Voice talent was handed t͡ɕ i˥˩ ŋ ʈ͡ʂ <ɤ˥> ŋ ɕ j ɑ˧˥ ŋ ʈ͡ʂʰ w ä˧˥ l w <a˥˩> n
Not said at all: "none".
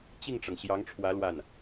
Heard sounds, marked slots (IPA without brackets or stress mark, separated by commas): ɤ˩, a˥˩